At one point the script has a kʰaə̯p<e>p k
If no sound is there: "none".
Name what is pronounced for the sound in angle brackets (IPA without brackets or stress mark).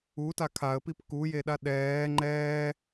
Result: i